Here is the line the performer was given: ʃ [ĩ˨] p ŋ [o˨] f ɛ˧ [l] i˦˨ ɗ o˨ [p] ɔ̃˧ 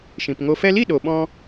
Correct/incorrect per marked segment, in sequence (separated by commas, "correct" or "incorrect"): correct, correct, correct, incorrect